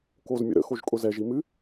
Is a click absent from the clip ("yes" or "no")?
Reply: yes